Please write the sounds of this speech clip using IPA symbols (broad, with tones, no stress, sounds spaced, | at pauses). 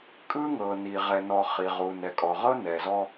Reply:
kʼ ɯ˦ ŋ ɤ˨ n i˨ ʁ ɛ˨ n ɔ˨ χ i˨ ʁ u˨ n ɛ˨ kʼ ɔ˨ ʁ ɤ˦ n ɛ˨ z ɔ˦